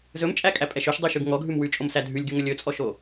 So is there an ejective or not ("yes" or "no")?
yes